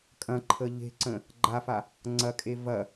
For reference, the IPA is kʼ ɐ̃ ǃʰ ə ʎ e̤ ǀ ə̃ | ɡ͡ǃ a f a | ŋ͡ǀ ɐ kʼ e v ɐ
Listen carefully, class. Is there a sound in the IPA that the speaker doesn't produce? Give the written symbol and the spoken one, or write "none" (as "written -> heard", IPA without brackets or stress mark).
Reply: none